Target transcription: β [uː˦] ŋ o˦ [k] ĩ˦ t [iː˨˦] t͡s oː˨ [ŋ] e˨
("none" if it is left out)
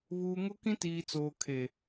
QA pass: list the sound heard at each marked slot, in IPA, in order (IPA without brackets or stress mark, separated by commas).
uː˨, k, iː˨, kʰ